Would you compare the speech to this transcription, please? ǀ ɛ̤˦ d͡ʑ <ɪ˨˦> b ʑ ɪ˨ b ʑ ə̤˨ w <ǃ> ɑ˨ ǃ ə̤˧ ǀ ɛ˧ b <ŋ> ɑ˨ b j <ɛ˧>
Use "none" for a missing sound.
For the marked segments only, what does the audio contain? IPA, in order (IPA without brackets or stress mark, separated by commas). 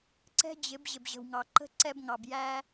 ɪ˨˦, ŋ, ŋ, æ˧